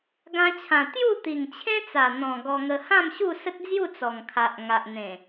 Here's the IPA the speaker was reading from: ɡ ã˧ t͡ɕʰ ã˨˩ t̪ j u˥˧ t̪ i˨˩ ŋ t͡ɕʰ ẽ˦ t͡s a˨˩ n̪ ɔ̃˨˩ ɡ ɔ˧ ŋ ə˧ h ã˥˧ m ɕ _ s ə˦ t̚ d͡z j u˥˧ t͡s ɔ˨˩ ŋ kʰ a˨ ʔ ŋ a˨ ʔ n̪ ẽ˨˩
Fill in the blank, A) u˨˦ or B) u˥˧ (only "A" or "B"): B